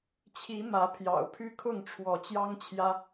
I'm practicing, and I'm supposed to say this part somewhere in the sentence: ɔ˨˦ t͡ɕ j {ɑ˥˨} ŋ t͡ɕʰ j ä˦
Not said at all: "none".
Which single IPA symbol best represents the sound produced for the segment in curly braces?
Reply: ɑ˦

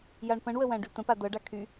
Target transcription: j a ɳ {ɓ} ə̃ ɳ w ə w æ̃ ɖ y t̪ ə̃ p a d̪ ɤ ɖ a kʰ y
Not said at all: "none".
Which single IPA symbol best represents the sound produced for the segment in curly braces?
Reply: p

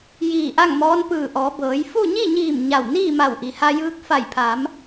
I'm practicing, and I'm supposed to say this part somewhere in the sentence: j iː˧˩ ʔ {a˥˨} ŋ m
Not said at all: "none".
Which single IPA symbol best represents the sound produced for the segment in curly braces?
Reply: a˥˨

